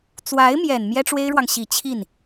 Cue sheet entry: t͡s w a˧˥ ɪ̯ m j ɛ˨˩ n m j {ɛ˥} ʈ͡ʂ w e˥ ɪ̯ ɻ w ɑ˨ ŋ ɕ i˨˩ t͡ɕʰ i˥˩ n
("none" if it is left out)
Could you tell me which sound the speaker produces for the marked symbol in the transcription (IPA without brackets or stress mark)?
ɛ˥